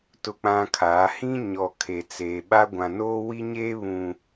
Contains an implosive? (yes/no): yes